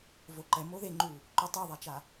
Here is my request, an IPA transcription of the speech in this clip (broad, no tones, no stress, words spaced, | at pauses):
voǃɛ moðeŋ͡ǃu | ǃutˤoðˤat͡ʃa